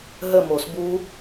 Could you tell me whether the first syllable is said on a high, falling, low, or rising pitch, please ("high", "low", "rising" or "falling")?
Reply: falling